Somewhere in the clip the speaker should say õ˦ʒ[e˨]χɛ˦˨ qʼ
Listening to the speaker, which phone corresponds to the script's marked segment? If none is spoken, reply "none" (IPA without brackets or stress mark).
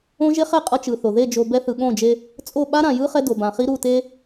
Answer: e˦